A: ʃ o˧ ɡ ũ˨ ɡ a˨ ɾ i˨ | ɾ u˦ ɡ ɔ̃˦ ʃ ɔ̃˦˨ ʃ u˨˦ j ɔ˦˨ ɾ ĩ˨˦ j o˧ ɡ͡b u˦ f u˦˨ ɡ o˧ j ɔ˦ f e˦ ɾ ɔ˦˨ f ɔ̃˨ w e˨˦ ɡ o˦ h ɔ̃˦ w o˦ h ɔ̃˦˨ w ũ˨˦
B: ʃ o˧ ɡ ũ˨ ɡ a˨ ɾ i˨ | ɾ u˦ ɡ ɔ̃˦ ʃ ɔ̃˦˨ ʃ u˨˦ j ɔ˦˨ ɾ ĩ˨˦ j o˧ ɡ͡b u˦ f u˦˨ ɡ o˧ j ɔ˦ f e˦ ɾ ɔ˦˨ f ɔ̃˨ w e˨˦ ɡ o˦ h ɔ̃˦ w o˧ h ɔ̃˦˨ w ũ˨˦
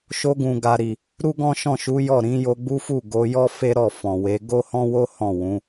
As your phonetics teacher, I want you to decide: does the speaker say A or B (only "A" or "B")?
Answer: A